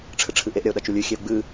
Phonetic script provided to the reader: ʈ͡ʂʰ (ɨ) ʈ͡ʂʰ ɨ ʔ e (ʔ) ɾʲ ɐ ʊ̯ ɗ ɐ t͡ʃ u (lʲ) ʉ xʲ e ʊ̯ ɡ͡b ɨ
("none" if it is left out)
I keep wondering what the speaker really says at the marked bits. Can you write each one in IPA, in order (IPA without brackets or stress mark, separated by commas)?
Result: ɨ, ʔ, lʲ